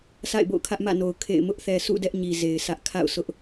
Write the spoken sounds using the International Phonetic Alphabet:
sʰa̰˦˨ɪ̯bo̰˦˨ʊ̯kʰä˦ʔ mä̰˦˨no˨ʊ̯ kʰḛ˦˨ɪ̯ mʊ˦ʔθɛ˨sʰṵ˦˨ dɛ˦ʔɲi˨ ze˨ɪ̯sʰä˦ʔ kʰa̰˦˨ʊ̯sʰʊ˦ʔ

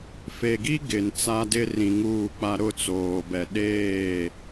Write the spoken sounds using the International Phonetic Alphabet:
fe˨ɡi˦ ɡɪ˨nt͡sa˦dɪ˦ rĩ˨ŋuː˦˨k͡pa˦ ɾʊ˦˨t͡soː˨bɛ˨ɗeː˦˨

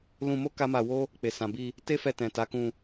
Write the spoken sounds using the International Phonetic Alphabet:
lũ˧mo˦ ka˦ma˧wo˦ | k͡pe˨sã˨bi˧ | te˦fɛ˧tɛ̃˨ ta˨˦kũ˧

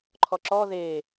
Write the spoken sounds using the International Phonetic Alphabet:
ǃʰɔǁɔ ðe

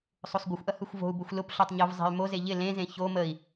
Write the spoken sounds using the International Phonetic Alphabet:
sˤosˤɡʷəxʷʔɐ hɯxʷvo̤u̯bʊxʷ lʊpɬotˤ ɲov zˤe̤y̯moze ʎɪ lẽzẽ ço məi̯

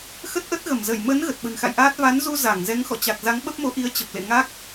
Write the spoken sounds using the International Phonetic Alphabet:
xə˦˥t̚ʔə˦˥t̚ɣə˧˩mzə˧˩j mə˨˦n ɣə˨˩t̚ɓə̤˨˩nxa̰˧˨jʔaː˦˥t̚ va˨˦nzu˧ za˧˩ŋzɛ˨˦ŋxɔ̰˧˨ t͡ɕa˨˩k̚za˨˦ŋ ɓə˦˥p̚mo˨˦ʔi˨˦ə̯ t͡ɕə˨˩p̚lḛ˧˨ŋa˦˥k̚

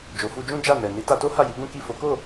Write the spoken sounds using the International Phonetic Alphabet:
d͡ʒo˨fu˧d͡ʒũ˦ d͡ʒa˦˨nɛ˨ ni˨˦ta˧to˦ ha˦˨ji˨˦ɡũ˦ ki˦˨ fo˨˦ko˦˨

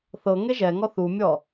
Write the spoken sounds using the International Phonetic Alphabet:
θɤ ŋeʒɛŋɔ θumʲɔ

